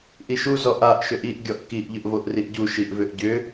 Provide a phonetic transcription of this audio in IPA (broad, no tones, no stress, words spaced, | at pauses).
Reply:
ʔiʃu zɔʔaʔ ʃʏʔiʔ ɡʲɔʔkiʔ ʎʏʔvoʔriʔɟu ʃiʔvʏʔɟʏ